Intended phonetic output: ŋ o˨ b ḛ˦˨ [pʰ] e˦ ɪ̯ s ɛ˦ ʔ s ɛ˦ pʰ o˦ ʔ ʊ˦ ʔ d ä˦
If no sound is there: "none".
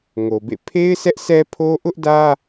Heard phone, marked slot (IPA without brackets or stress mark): pʰ